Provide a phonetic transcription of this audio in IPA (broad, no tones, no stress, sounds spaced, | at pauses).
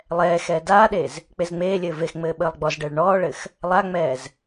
lˠ ɛː x ɛː d aː ɗ e z | k͡p e z ŋ͡m eː lʲ ɘː v e x ŋ͡m ɘː ɓ əː lˠ ɡ͡b ɔ z ɖ ɘː ɭ ɳ ɔː ɭ ɘ x | lˠ a ŋ͡m ɛː z